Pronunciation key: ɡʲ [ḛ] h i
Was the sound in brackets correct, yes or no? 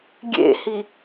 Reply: yes